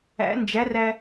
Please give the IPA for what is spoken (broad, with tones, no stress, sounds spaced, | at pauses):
æ̰˧˥ n d͡ʒ æ˧˥ r æ˧